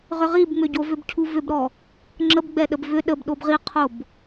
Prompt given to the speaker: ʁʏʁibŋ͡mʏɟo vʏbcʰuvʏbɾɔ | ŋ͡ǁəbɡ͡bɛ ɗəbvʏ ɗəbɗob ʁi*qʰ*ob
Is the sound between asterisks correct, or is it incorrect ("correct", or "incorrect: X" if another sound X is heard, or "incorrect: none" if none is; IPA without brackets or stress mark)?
correct